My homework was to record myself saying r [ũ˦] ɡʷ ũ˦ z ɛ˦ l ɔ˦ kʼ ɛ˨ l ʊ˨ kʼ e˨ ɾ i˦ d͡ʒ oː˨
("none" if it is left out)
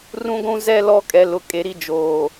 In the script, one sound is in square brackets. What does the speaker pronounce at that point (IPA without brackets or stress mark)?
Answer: ũ˦